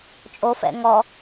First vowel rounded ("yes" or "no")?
yes